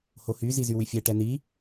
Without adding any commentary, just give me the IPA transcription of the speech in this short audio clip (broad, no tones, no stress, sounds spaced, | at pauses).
h o h y z i z y w y fʲ ɛ ʈ ɛ n i